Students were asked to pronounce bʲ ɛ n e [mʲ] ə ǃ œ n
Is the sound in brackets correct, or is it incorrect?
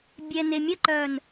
correct